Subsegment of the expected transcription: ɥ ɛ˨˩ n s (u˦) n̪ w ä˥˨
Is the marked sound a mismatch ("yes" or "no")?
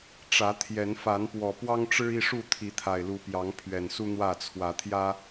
no